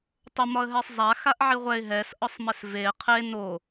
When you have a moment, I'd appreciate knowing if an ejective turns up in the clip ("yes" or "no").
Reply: no